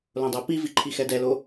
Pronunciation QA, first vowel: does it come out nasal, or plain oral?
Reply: nasal